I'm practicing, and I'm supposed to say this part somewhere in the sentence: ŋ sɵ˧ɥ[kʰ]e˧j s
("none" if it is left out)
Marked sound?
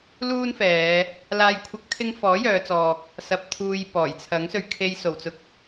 kʰ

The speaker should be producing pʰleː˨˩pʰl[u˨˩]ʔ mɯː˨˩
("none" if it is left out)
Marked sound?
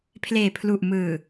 u˨˩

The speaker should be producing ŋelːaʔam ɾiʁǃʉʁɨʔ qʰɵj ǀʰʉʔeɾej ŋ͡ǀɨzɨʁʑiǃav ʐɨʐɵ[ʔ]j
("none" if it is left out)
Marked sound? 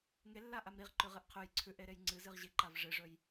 none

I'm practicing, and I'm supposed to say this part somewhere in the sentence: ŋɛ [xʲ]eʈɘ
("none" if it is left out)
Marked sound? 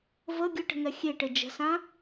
xʲ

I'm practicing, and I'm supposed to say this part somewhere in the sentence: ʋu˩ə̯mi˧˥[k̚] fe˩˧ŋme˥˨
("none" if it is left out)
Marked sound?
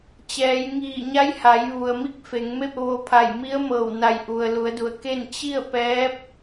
k̚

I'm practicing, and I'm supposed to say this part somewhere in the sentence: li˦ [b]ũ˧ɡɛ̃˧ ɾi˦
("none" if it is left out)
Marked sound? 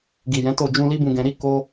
b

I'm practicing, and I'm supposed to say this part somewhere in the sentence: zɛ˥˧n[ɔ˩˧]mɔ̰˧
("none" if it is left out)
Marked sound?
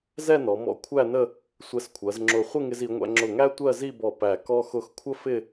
ɔ˩˧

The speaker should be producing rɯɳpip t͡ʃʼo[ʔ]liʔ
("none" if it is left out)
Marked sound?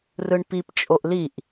ʔ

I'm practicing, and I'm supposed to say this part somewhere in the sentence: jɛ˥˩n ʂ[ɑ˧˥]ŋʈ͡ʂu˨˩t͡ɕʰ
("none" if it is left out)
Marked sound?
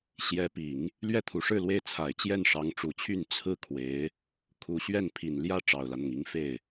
ɑ˧˥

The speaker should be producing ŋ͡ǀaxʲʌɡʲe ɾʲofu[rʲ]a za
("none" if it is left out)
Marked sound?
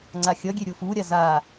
ɾʲ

